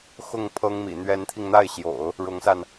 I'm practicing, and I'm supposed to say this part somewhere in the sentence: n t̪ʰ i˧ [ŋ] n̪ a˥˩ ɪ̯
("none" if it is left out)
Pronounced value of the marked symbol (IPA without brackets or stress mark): ŋ